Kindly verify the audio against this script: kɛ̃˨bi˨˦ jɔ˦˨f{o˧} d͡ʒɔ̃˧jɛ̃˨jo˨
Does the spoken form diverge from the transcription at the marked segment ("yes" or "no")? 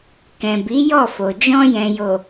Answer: yes